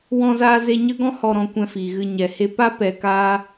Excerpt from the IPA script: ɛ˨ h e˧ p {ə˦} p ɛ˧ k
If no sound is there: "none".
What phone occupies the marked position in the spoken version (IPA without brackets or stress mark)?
a˦